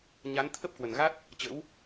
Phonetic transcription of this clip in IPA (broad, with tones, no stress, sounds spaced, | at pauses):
ɲ a˨˦ n t̪ʰ ə˦˥ p̚ k w ə˨˩ n ɣ a˦˥ t̚ | t͡ɕ ə̰˧˥ w